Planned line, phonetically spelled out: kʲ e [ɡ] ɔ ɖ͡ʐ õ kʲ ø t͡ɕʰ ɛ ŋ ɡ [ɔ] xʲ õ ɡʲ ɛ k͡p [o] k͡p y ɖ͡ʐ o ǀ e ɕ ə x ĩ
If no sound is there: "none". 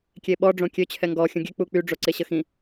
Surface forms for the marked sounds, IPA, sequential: ɓ, ɔ, u

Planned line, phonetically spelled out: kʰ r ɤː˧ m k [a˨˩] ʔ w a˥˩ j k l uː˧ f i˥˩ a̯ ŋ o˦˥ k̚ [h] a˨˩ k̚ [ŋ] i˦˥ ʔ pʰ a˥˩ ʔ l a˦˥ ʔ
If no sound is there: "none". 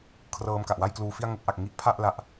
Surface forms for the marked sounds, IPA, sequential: a˨˩, ʔ, ŋ

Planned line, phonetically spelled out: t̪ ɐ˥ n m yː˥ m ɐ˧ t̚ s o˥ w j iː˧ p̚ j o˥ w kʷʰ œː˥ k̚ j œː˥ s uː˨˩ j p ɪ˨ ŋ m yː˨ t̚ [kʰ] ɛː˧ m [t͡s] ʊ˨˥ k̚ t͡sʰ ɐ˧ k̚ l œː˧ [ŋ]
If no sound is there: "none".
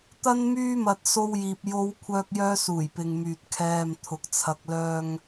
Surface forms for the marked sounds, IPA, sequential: kʰ, t̪ʰ, ŋ

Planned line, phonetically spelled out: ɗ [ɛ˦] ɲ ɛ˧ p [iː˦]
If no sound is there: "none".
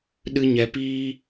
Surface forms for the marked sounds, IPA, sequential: ɨ˦, iː˦

